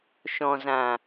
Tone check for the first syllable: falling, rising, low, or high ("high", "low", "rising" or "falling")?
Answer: low